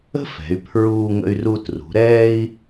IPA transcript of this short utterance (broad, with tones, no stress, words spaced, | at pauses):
ə̤˥fɛ̤˩˧y̯ pʰɹuː˧ ŋə̰˧y̯ru˧trṳ˩˧ ɾɛː˥i̯